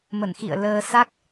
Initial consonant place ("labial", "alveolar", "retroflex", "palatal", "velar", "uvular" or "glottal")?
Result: labial